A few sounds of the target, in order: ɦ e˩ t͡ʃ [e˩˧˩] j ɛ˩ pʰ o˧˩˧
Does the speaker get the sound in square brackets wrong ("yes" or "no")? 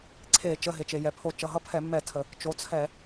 yes